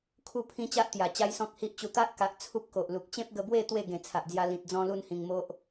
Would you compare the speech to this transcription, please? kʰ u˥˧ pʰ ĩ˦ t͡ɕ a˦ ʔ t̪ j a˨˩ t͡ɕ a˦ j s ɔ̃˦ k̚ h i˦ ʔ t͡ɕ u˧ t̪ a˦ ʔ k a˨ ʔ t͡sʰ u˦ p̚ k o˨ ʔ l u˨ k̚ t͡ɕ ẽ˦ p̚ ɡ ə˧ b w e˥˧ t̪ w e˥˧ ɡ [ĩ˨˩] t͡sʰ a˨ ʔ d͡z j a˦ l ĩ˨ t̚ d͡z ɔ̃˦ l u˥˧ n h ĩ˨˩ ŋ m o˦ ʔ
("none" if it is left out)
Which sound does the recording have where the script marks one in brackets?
ẽ˨˩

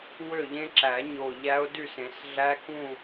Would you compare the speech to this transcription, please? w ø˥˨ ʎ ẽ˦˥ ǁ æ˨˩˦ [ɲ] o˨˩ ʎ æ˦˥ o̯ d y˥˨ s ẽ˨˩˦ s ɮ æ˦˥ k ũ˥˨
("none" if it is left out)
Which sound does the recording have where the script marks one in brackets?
ɲ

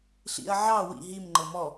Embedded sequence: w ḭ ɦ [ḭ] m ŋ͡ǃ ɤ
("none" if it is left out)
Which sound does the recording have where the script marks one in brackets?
i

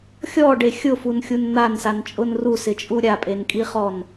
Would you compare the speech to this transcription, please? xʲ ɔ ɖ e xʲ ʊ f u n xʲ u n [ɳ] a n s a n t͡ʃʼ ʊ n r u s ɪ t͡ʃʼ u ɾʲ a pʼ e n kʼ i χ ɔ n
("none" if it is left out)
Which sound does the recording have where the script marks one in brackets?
n̪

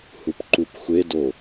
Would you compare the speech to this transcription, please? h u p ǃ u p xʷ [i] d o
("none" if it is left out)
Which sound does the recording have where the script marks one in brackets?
e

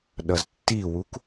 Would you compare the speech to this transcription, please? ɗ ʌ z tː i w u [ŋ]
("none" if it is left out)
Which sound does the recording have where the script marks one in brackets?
k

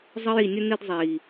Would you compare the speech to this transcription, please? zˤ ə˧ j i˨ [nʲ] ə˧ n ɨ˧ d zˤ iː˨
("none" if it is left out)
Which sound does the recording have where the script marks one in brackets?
nʲ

